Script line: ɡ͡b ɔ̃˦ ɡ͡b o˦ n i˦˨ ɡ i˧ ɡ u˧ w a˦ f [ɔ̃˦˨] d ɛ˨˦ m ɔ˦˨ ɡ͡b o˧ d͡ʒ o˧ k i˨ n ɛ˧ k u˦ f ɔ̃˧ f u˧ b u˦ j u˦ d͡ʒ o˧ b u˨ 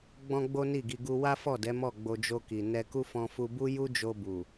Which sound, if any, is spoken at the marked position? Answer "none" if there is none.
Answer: ɔ˦˨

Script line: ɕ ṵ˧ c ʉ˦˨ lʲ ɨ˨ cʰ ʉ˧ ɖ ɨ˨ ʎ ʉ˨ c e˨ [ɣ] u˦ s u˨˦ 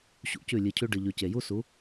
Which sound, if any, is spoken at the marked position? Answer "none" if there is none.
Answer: j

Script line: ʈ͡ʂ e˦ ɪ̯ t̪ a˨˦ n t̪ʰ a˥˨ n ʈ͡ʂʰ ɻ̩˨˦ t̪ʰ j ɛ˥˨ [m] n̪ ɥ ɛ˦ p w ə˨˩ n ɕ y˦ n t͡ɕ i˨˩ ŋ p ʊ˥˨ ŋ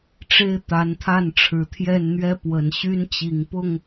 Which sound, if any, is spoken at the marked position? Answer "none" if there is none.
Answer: n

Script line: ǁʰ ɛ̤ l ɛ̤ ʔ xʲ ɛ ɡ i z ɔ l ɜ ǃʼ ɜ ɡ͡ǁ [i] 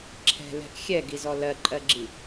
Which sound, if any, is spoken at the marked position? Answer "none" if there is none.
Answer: i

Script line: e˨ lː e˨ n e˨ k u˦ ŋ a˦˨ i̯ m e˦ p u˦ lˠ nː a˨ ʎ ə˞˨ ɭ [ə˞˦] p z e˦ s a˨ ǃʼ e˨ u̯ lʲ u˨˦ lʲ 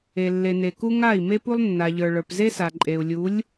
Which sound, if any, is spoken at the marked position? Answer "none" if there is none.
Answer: ə˞˨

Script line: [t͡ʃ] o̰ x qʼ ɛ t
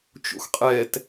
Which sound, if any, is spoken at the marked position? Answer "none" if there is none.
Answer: t͡ʃ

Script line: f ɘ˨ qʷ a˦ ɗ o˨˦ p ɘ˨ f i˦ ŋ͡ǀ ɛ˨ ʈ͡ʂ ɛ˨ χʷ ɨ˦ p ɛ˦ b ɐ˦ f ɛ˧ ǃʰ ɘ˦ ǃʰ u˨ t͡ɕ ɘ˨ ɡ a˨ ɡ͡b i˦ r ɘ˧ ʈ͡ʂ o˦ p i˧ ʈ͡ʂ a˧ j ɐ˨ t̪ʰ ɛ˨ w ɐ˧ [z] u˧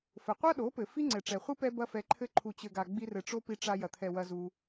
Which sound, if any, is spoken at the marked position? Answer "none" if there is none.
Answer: z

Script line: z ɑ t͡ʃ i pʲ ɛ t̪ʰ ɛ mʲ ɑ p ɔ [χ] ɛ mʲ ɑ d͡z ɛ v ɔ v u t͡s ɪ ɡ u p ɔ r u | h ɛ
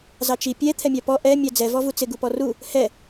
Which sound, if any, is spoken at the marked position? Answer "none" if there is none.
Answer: ʔ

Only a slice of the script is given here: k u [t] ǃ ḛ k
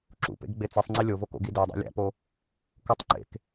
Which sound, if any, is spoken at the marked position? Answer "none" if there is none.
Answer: tˤ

